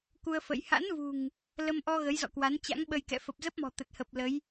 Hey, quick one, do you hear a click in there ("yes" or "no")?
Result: no